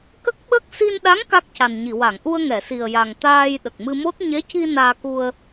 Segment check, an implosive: present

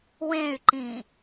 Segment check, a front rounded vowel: present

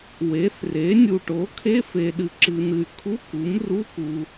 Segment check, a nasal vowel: absent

